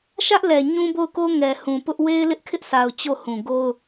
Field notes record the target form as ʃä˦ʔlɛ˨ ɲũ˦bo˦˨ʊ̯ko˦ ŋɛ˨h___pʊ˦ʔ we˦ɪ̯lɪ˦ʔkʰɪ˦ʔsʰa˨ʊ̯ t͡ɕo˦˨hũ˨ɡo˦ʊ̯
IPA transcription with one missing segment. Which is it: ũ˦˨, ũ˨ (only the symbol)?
ũ˨